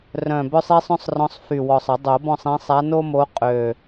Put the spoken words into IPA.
r œ̃˨˩ b œ˦ sˤ i˦ sˤ œ̃˦ sˤ r ɔ̃˨˦ sˤ f y˨˩ w ɔ˨˩ sˤ ə˨˩˦ dˤ o˨˩˦ b ɔ̃˦˨ sˤ ĩ˨˦ sˤ a˨˦ n o˦ m o˨˦ qʼ ø˨˩

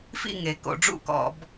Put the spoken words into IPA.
f ḭ˥˨ ŋ e˩˧ k o̰˩˧ ɖ͡ʐ ṵ˥˨ k ɔ̰˧˩˧ b

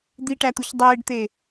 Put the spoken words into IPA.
d̪ i ʈ æ t̪ u ç dˤ eː ɖ t̪ e

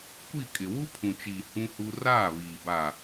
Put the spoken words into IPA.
kʷ i˦˨ kʼ ɪ˨ w u˦ pʰ ũ˨ t͡ʃ iː˨ h ũ˦ h u˦ r aː˦˨ β iː˨ b aː˨

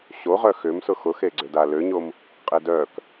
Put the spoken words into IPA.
ɕ o ʁ œ x ʏ m s ʊ x ʊ x e ɡ͡ǀ ø d a l ø ɲ o m | qʼ e d œ k

